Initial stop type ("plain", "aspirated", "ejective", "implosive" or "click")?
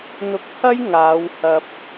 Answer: plain